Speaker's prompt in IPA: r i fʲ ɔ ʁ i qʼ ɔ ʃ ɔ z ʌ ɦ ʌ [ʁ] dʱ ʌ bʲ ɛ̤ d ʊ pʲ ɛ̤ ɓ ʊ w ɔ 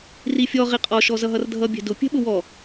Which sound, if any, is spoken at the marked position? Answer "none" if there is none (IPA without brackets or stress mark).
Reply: r